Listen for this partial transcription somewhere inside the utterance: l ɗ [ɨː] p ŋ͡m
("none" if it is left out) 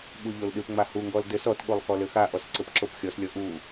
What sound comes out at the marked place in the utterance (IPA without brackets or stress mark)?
ɨ